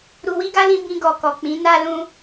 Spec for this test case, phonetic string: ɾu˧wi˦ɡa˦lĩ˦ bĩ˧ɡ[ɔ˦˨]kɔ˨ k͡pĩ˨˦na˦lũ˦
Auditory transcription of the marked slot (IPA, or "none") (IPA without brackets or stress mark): ɔ˨